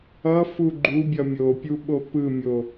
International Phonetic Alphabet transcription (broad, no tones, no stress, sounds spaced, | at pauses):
ʌ f u ɡ͡ǃ u bʲ ʌ mʲ o pʲ u ɓ o p ɯ mʲ o